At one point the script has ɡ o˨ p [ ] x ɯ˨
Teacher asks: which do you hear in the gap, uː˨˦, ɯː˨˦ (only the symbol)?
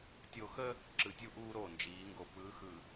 ɯː˨˦